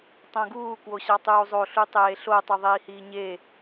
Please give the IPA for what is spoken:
tˤ õ ɡ uː k w o ɕ ɑ tˤ uː zˤ o ɬ u tˤ eː ɬ o tˤ u ðˤ iː h iː ɲ e

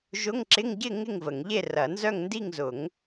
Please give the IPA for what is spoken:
ʒ ʊ˧˥˧ ŋ ǁ ɪ˧˥˧ ŋ ɟ ɪ˥˨ ŋ ɪ˥˨ ŋ v ə˨˩˦ ŋ ʎ e˥˨ r ɐ˨˩˦ n z œ˥˨ ŋ n d i˥˨ ŋ z ʊ˨˩˦ ŋ

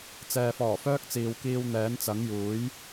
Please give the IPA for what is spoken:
t͡s ɛː˨ f ɔː˨˩ f œː˥ k̚ t͡s iː˨ w k iː˧ w n̪ ɛː˨˥ n t͡s ɐ˨˥ ŋ j uː˨˥ j

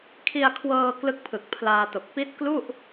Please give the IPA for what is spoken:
kʰ i˧ a̯ kʰ w ɤː˧ k l ɯ˦˥ k̚ pʰ ɯ˨˩ k̚ pʰ l aː˧ t o˨˩ k̚ p i˦˥ t̚ k l u˥˩ ʔ

